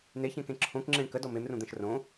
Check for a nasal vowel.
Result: present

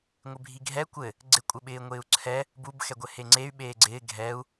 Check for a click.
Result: present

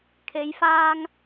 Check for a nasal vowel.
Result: absent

